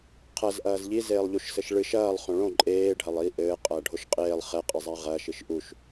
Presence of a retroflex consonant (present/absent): present